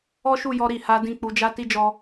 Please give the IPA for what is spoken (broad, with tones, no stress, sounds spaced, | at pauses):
ɔ˦ ʃ u˦˨ j ɔ˧ ɾ i˨ h a˨˦ d ĩ˦˨ k͡p u˨˦ d͡ʒ a˦ t i˦ d͡ʒ ɔ˧